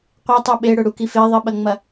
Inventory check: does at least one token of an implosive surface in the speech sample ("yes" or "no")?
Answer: yes